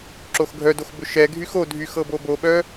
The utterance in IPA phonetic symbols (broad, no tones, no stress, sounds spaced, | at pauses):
ǁ o x ɡʱ œ d o x b ʏ ʃ ɛ ɡʱ y x o dʱ y x ɤ b o b o ɓ œ